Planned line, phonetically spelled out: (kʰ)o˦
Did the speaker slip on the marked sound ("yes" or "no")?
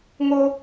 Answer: yes